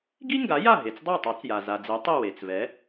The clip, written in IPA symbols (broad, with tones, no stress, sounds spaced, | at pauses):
ɡ i˥ ŋ ɡ a˩˥ j a˥˩ ɦ e˩ t͡s dˤ a˥˩ tˤ ɛ˩˥ t͡s j a˩ z a˩ d͡z i˩˥ tˤ i˥˩ w e˩ t͡s v ɛ˩˥